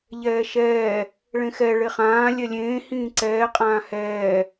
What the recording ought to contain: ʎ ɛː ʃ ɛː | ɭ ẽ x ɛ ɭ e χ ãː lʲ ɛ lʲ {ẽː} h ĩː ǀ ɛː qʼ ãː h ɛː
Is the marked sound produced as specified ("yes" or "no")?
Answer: yes